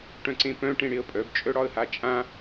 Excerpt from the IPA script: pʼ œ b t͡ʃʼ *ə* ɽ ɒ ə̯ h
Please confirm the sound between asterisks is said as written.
no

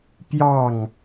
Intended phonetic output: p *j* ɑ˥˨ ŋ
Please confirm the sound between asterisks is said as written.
yes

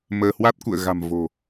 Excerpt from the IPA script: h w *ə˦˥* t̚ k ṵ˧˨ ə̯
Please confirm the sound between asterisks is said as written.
no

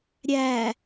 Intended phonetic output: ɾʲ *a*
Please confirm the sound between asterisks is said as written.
no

